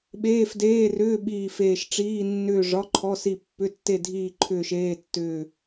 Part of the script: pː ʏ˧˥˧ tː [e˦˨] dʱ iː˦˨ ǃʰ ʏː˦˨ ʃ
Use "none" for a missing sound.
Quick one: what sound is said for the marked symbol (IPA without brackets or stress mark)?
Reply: e˦˨